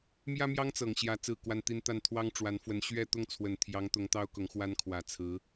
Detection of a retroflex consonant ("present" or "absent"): present